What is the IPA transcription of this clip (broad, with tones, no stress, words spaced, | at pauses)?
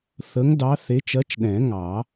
θə˨˦ŋdɑ˨˦ θe˨˦t͡ʃɜ˨˦t͡ʃ ɗɛ̃˨˩˦ŋɑ˨˩˦